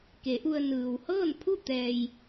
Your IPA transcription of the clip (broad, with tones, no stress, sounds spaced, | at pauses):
k e˩˧ ʔ u˧ ə̯ n ɯː˩ w h ɤː˥˨ n pʰ u˥˨ t̪ ɛː˧ j